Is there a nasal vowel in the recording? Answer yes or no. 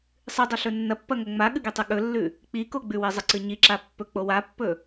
no